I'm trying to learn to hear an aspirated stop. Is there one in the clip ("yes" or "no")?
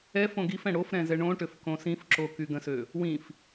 no